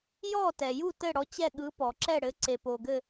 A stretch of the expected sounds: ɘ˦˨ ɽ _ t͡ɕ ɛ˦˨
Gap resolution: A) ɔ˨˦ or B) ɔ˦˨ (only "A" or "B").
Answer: A